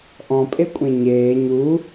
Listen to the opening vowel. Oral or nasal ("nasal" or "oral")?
nasal